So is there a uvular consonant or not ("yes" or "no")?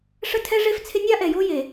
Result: no